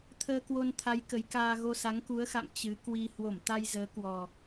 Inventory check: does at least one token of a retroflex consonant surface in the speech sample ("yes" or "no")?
no